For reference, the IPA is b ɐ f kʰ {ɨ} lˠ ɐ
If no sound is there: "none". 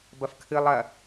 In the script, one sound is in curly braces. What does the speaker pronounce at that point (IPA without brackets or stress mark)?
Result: ɨ